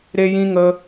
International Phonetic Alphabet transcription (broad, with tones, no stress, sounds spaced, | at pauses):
ɾ e˦ j ĩ˦ ŋ ə˦